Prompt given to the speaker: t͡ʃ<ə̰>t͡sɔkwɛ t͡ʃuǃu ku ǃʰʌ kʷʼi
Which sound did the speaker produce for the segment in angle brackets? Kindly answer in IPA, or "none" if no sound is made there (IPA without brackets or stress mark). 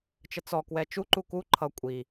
ə